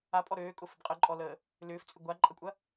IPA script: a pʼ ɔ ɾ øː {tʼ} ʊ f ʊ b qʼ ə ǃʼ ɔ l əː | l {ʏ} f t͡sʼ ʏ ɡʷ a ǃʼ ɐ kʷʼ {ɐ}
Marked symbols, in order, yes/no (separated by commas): no, no, yes